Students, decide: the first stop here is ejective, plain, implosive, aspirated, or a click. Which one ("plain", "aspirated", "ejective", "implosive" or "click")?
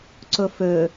click